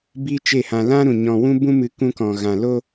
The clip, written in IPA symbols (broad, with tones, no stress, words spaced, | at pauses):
bi˦t͡ʃe˦˨hã˧ lã˦ ɾũ˧ɲɔ̃˧wũ˦bũ˦ mɨ˧kũ˧ kɔ̃˨ɣã˨lo˧